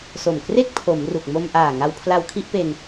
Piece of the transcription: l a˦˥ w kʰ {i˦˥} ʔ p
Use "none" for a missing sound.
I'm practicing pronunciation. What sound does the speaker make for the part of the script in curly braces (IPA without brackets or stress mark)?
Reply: i˦˥